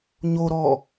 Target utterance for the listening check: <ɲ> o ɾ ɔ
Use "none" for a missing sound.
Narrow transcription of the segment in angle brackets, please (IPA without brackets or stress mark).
ɲ